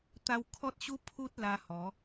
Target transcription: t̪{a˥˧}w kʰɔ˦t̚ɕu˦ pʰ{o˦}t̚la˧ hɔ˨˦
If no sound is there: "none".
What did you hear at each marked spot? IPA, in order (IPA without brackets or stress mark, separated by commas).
a˦, u˦